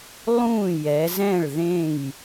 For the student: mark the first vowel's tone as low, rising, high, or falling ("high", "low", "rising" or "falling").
falling